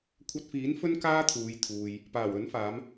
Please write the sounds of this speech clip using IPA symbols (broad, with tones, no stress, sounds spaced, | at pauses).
kʷʰ ɐ˧ t̚ f iː˨˥ n f ɵ˥ n k aː˥ t̪ʰ uː˨˧ j t̪ʰ uː˨ j | p aː˨˩ w ɵ˨˥ n f aː˨˧ m